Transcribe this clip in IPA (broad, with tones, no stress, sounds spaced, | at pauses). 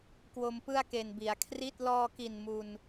k w o˧ m p ɯ˥˩ a̯ k e˨˩ n b i˩˦ a̯ kʰ r i˥˩ t̚ l ɔː˧ k i˨˩ n m u˧ n